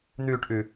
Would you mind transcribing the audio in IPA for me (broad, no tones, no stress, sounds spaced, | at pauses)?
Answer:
n̪ yː ʈ ʔ y